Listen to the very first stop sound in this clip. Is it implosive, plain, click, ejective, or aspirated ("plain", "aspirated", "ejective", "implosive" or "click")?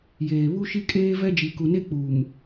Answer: ejective